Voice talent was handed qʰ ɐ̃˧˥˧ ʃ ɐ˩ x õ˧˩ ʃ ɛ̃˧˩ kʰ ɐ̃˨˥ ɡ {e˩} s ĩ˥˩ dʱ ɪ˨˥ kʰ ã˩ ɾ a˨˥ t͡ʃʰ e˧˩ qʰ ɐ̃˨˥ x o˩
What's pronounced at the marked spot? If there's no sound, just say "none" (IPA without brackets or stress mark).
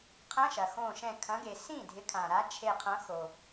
e˩